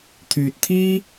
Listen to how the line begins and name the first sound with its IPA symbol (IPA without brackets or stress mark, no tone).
t̪ʰ